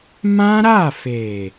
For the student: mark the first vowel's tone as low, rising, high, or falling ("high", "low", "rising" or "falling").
high